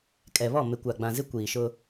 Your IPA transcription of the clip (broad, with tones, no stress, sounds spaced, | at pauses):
kʼ ɛ˨ β ɔ˦˨ m ɪ˨ kʷ a˨ ɡ͡b ã˨ z ɪ˦ kʷ iː˨ ʃ ʊ˦